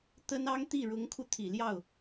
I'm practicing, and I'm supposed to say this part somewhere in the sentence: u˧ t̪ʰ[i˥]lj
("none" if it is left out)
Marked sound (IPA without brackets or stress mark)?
i˨˩